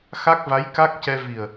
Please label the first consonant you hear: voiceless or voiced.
voiceless